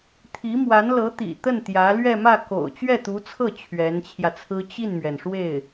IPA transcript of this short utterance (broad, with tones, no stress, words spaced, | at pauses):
t̪ʰi˧˥mwa˧˥n lɤ˧˥t̪ḭ˨˩t̪ə˥˩n t̪jä˧˥ lɥɛ˥˧mä˥˩ ko̰˨˩ʊ̯ t͡ɕɥɛ˥˩t̪u˧˥t͡sʰɤ˥˩ t͡ɕʰɥɛ˧˥nt͡ɕʰjä˧t͡sʰɹ̩˥ t͡ɕi˥˩nmɥɛ˩n ʂwe˥˩ɪ̯